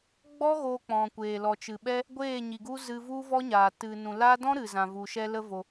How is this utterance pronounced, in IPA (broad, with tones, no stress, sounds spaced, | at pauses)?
ɡ͡b ɔ˦ ɣ oː˧ k͡p ɔ̃˨ kʷ eː˨ l ɔ˨ t͡ʃ ɨ˨ ɓ ɛ˦ | ɡʷ eː˦˨ ɲ i˨ ɡ u˧ z ɨ˧ v u˦ v ɔ˦ ɲ aː˨ t ɨ˨ n ũ˨ l a˦ d ɔ̃˦ ɾ ɨ˨ z ã˨ v u˨ ʃ ɛ˧ l ə˦ v o˧